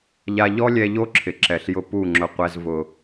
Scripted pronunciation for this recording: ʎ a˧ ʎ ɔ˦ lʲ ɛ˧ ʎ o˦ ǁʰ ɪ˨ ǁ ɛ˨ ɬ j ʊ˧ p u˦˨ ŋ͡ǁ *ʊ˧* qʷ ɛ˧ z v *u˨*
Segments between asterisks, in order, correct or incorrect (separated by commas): correct, incorrect